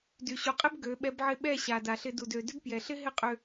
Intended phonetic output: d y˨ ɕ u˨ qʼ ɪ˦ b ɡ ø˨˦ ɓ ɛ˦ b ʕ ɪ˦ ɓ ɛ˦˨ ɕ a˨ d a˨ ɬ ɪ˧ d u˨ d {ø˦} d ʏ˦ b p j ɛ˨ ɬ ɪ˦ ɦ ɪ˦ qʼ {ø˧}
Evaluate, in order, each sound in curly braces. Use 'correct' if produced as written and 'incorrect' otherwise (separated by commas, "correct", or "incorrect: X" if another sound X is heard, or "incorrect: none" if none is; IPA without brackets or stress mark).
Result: incorrect: ø˨, correct